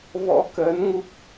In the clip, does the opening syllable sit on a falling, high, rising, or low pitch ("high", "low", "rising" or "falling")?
rising